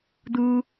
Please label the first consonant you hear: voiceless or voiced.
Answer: voiced